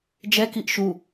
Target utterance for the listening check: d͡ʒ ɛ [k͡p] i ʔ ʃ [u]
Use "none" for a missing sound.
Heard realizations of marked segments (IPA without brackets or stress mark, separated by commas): k, u